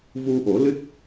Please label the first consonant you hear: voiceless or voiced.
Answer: voiced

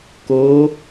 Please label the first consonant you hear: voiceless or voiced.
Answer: voiceless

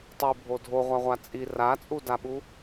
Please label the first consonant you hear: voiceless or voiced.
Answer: voiceless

